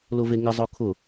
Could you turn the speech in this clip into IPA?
lʊveŋɪ zˤʊkʰʊ

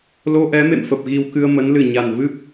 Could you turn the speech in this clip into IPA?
lo˧ʔɛ˨˦mḛ˧˨mfə˨˩p̚ ɣi˧wkɨ˧ə̯mə˨˦n lɨ˧˩ɲa˨˩nvɨ˦˥p̚

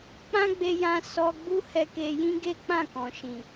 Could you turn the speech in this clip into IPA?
k͡pã˦ɡ͡be˧jã˧ sɔ˧ɡ͡bu˦ hɛ˧ke˧jĩ˦ ɡe˦k͡pã˦˨kɔ̃˨ʃĩ˨

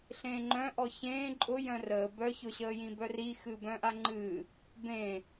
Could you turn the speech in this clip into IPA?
ɬẽːŋ͡ǃœ̃ʔɔ çẽː ǃʼʊ jœ̃rəː bœçʊɕəːjĩ bœri xɨbœ̃ʔaŋ͡ǃɨ | bẽ

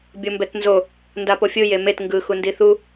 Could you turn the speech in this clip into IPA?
bʲombɛtnzo | ndapofʲɯ jemet ŋɡɯ xundiθu

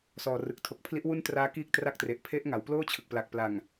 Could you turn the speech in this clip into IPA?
sɔː˨˩rɯ˨˩k̚ tʰo˨˩k̚ pʰli˦˥ʔ wu˥˩ntraː˦˥ kiː˥˩k̚tra˥˩k̚tre˨˩ʔ pʰe˦˥ʔŋa˩˦w ploː˥˩t͡ɕʰɯ˨˩k̚pla˨˩k̚pla˨˩ŋ

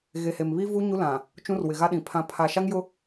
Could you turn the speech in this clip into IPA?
ɣe˨ he˨mβi˦vu˦ ɲu˦lã˨ | t͡ʃũ˦rwɪ˨ɣa˦ɗĩ˨ pʰã˨pʰa˨ʃa˦ŋ jʊ˦

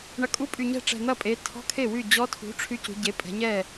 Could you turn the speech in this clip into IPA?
ɳɐ˨˩kʼu˧˥˧pʼy˨˩ ɲɛ̤˥˩ ʈ͡ʂɛ̤˨˩n̪ɐ˥˩pʼe˩˧ tʰɔ̤˧˥˧kʰe˥˩wy˥˩ d͡ʑɔ˧˥tʰṳ˩˥ ʈ͡ʂʰy˧˥cṳ˩˧ɟe˩˥ pʼɛ̤˩˧ɲɛ˥˩

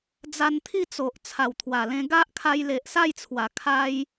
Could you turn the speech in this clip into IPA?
d͡za˧nt̪ʰi˥˧t͡so˨ʔ t͡sʰa˨˩wt̪ʰwa˨˩lẽ˧ ɡa˦ʔ kʰa˧jle˨ʔsa˥˧jt͡sʰwa˨˩ kʰa˦j

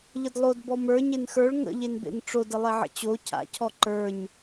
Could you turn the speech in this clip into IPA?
ʎədlˠodbɔ mə˞ ɲenxə˞ɭ ŋə̰ʎenbḛn ʈ͡ʂodə lˠeʕə̰t͡ɕo cʰa̰ cʰɔǃə˞ɲ

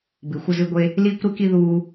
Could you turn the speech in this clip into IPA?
bɨ˨˩˦xʷɐ˦zɨ˦ɡʷe˦ | liː˦kʷɾɨ˦ki˦ ðuː˦

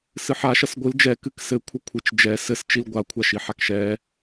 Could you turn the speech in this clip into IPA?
sɨħa ʃɐsɡʷɨl d͡ʒɛ kɨksɘkʷʰɐ kʷʰɨt͡ʃd͡ʒɛ sɘst͡ʃil ɡʷakʷʰaʃiħak ʃɛ

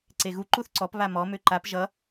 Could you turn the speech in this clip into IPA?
ǀeɣu ǃuθǀɔp βamɔ møǃap ʒʌ

